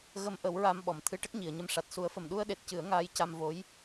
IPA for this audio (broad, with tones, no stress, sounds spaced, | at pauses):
ɣ ə˧ m ʔ ə˨˩˦ w ɹ a˧ m ɓ ɔ˨˩˨ m t̪ʰ ɨ˧ ʈ ə˦˥ k̚ ɲ i˨˩˨ ə̯ ɲ ə˧ m ʂ a˨˩ t̚ s u˨˩˦ ə̯ f ə˨˩ m ɗ u˧ ə̯ ɗ e˨˩ t̚ c ɨ˨˩˦ ə̯ ŋ aː˧˥ j c a˧ m v o˧˥ j